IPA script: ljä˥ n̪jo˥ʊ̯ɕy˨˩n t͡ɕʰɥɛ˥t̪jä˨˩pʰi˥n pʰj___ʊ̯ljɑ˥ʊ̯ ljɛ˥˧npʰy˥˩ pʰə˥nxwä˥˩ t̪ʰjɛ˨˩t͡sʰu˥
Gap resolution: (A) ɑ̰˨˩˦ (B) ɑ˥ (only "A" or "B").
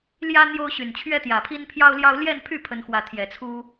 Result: B